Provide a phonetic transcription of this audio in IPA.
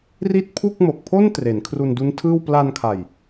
r i˥˩ t̚ pʰ u˥˩ k̚ m o˨˩ k̚ pʰ o˥˩ n t r e˩˦ n kʰ r u˧ n d u˦˥ n tʰ ɯː˥˩ w p l a˧ n kʰ a˨˩ j

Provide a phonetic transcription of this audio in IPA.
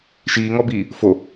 ʃ iː ŋ ɔ b iː | f o

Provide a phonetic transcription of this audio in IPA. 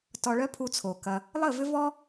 t ɔ˧ ɭ œ˦ pʰ u˧ t͡sʰ o˨ k ɐ˧ | lˠ ə˦˨ v ʏ˦ v ɔ˦

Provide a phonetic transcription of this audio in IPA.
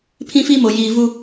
pʰ ĩ˦ f i˦ m o˨ j iː˨ v u˦

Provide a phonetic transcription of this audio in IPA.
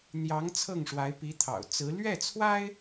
n̪ j ɑ˧˥ ŋ t͡sʰ ɤ˥˩ ŋ ʂ w a˧˥ ɪ̯ p i˧˥ t̪ʰ ɑ̰˨˩ ʊ̯ t͡s ɹ̩˧˥ l ɥ ɛ˥˩ t͡sʰ w a˥ ɪ̯

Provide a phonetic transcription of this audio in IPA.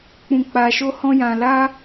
k͡p ũ˧ k͡p a˧ ʃ o˦ h ɔ̃˦ j ã˧ l a˦

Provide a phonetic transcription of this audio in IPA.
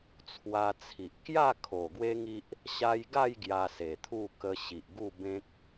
t͡sʰ w a˧ t͡sʰ i˨ ʔ k j a˥˧ kʰ o˨˩ ɡ w e˦ ŋ i˦ ʔ | ɕ a˧ j ɡ a˥˧ j ɡ j a˧ s e˨˩ t̪ʰ u˥˧ k ə˧ ɕ i˨ ʔ ɡ u˥˧ b ẽ˦ k̚

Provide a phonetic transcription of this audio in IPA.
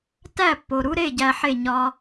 t æ˥˩ pː o˩ ɾ u˥ ɾ e˥˩ ɟ æ˧ ħ e˥˩ ɲ ɒ˧

